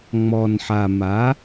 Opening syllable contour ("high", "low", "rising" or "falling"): low